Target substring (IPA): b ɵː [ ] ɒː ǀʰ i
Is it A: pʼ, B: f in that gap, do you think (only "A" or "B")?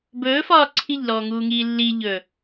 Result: B